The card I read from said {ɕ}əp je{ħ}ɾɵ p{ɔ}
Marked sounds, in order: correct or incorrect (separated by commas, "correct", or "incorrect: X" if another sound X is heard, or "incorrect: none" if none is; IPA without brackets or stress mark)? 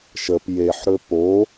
incorrect: ʃ, correct, incorrect: o